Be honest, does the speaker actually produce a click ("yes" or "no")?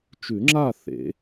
yes